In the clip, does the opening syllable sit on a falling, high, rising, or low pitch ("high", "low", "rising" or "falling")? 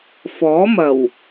rising